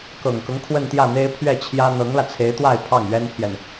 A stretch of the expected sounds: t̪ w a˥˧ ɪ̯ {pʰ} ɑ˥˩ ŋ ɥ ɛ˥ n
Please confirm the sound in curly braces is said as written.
yes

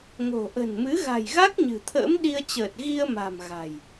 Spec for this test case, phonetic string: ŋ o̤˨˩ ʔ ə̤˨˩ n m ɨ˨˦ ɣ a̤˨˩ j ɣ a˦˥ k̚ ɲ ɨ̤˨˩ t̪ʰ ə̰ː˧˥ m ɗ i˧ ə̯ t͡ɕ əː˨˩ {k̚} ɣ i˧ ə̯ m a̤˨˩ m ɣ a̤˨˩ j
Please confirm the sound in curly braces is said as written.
no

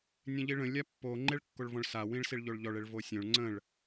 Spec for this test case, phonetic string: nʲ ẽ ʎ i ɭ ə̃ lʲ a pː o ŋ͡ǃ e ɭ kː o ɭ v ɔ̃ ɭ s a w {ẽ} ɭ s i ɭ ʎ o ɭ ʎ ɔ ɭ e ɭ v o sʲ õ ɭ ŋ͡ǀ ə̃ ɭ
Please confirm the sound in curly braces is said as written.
no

